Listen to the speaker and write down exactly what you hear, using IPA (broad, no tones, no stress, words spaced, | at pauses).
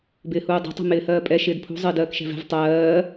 bɪːhuːdˤɛ̤tˤṳ mɪːhɜːpʼɛ ʃɪːdpʰṳ zˤɪːdɜːkʃɛ̤vɛ̤v tˤɜː